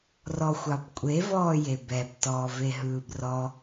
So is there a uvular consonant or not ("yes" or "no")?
no